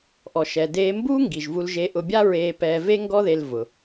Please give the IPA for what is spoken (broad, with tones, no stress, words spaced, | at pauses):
ʔɔ˩ʃɛ˩ deː˧mbuː˥ ŋɡi˩ʒvu˧lʒe˧ ʔʊ˧bʲa˥ ɹeː˧pɛː˧ ve˥ŋɡɔ˥ðe˧l vʊ˩